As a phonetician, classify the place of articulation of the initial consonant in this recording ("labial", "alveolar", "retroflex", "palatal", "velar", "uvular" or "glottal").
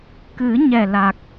velar